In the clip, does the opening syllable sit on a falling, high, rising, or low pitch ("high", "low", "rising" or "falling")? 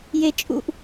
low